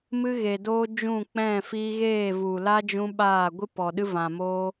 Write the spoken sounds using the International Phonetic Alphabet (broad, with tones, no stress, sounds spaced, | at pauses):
m ɨ˦ ɣ e˨ d oː˦ d͡ʒ ũ˦˨ k͡p ɛ̃˦˨ f iː˦ ɣ eː˦˨ v u˨ l a˦ d͡ʒ ũ˦ ɓ aː˦˨ ɡʷ ɨ˦ p ɔ˨ ɗ ɨ˦ v ã˨ m oː˦